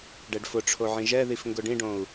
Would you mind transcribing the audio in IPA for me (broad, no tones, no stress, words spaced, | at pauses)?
ɖɛɖfʊʈ͡ʂʰo ʕĩʒɛðif ŋɡʊɖĩɖõu̯